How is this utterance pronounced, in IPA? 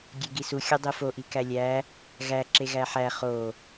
ɡʲ e ɡ i s u xʲ ɒ dˤ e f o ʔ i k æ lʲ æ | ɣ æ ǁ e ɣ æ ħ æ χ o

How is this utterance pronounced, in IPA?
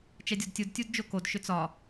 t͡ʃ ɛ dʲ ɒ d tʲ u d tʲ u d d͡ʒ o k o d ʃ ʏ t͡s ɒ

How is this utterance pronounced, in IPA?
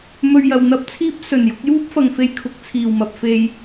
m ɵ˧ ɥ j ɐ˨ w n̪ ɐ˥ p̚ t͡sʰ iː˥ p̚ s ɵ˨˩ n j ʊ˧ k̚ j uː˥ p̚ f ɐ˨ ŋ f e˧ j kʰ ʊ˨ k̚ t͡sʰ iː˨˩ w m ɐ˨ p̚ f e˨ j

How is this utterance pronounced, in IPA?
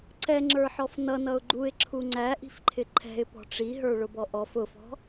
ǀ ɛ ŋ͡ǁ ə˞ ħ ɔ f n ʌ n ʌ ʊ̯ ɡ͡ǃ u ɪ̯ ǁʰ u ŋ͡ǀ æ ʔ i̤ f ǃʰ ɪ ǃʰ ɛ̤ ɪ̯ p ɔ̤ ʈ͡ʂ i ɦ ə˞ ɭ ʊ b ɔ ʔ ɔ f ʊ f ɔ̤

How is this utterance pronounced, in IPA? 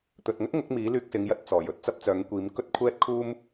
t̪ ɵ˨ t̚ ŋ ɵ˥ t̚ ŋ ʊ˨˥ k̚ m iː˨˥ l yː˧ k̚ s ɪ˨˧ ŋ j ɐ˧ t̚ t͡s ɔː˨˩ j ɵ˧ t̚ t͡s ɐ˥ p̚ t͡s œː˨˥ ŋ kʷ iː˨˧ m k ɵ˥ t̚ kʷʰ ɛː˥ t̚ kʰ uː˥ m

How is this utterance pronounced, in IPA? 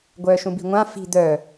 ɡʷ œː ʃ ũ b i̤ ŋʷ ã f i̤ d̪ œː

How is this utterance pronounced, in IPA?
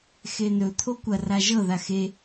x e n ɵ t̪ʰ o kʷ ɐ r a ʒ ɤ ð a x e

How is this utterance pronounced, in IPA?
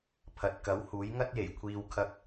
pʰ ɐ˨ t̚ k ɐ˨˥ w h uː˨˥ j ŋ ɐ˥ t̚ j e˨˩ j kʷʰ iː˧ w kʰ ɐ˧ k̚

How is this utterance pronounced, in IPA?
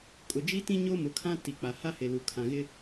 kʼ ʊ˨ d͡ʒ i˦ t ĩ˦ ɲ o˦ m ʊ˨˦ kʰ ã˦ t i˨ k͡p a˨ h a˦ h e˨ l u˨ kʰ ã˨ ɣ ɪ˦

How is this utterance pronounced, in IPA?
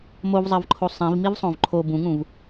m o v zˤ ɜ v ǃʰ o sˤ ĩ v m i v sˤ õ v ǃʰ o b ũ ŋ ũ v

